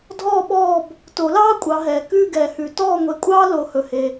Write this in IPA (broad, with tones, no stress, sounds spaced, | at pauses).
dʱ ɔː˦˨ ɓ ɔː˦˨ b | t o˨˩˦ l ɑː˦ kʷʼ ɑ˨˦ ɦ ɛː˨ k ʉː˦˨ ɡ ɛː˨ h ʉ˨˩˦ t ɔː˦˨ ŋʷ e˨˦ kʷʼ ɑː˦ l o˨˦ h ɵ˨ h e˨